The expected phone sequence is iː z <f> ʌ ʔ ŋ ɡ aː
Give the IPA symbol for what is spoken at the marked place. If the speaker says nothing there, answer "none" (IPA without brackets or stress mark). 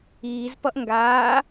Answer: p